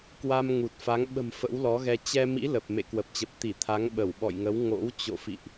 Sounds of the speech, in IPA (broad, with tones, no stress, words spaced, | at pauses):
kwa˧mŋu˨˩t̚fa˨˦ŋ ɓə̤˨˩m fə̰˧˥wlɔ˨˦ɣɛ˧ t͡ɕɛ˧mḭ˧˥ lə˨˩p̚ mḛ˧˨kwə˨˩p̚t͡ɕə˨˩p̚ t̪i˧˩ t̪ʰa˨˦ŋɓə˧˩wɓɔ̰˧˨jŋə˨˦w ŋo̰˧˥wt͡ɕo̰˧˨fḭ˧˨ʔ